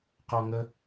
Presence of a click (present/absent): absent